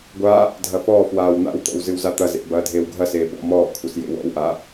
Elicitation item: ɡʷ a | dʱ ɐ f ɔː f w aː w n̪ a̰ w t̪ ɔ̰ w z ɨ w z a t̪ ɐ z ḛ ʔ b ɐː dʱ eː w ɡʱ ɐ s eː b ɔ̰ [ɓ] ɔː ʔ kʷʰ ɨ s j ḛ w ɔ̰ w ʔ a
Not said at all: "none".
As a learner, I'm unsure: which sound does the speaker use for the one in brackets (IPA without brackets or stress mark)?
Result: m